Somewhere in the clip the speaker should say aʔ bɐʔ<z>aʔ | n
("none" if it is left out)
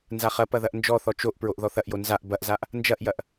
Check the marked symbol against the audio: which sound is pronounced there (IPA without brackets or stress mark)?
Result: z